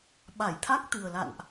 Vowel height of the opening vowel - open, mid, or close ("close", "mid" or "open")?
open